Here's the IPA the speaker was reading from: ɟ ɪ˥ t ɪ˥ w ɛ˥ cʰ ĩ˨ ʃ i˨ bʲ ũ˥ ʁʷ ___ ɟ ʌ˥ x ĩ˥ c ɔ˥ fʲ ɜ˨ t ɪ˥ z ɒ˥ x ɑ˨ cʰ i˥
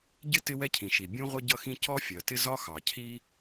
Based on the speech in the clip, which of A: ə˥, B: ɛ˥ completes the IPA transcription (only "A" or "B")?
A